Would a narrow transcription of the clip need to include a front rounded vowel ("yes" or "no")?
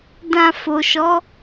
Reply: no